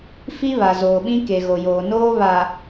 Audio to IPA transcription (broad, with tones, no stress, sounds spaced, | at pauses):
f i˦ β a˨ z oː˨ ɓ ĩ˦ k e˨ ɣ o˨ j oː˨ n oː˦ β a˨